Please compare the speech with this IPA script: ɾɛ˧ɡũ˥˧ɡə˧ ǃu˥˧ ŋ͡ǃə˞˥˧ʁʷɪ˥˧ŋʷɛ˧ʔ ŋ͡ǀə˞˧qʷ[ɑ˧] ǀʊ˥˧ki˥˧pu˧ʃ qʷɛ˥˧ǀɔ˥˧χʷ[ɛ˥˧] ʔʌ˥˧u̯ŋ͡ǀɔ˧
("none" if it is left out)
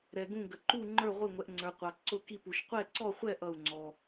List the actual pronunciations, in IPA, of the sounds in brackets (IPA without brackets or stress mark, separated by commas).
ɑ˧, ɛ˥˧